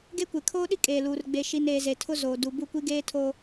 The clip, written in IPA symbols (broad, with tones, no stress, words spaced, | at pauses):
ɡe˦kʷe˨ kʰoː˦ɗi˦ kʼeː˨luː˨r ɡ͡be˨ʃi˨n eː˨ze˨tʰʊ˦ zoː˨ du˨bu˦˨kʷi˦ɡeː˦ tʰoː˦